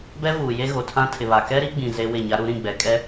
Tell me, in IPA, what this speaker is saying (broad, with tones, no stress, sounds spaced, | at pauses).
b ɛ˦ v uː˨ j e˦ ɣ o˨ tʰ ã˦ tʰ ɪ˨ β a˨ k ɛ˦ ɾ i˦ ɡ͡b ĩ˨ z e˦ w ɪ˦˨ ɲ a˦ ɾ u˦ ɾ ĩ˦˨ ɡ͡b ɛ˨ kʼ ɛ˦